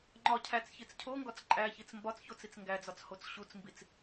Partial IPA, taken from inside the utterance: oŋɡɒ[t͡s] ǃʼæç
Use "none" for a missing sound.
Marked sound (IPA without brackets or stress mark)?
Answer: t͡s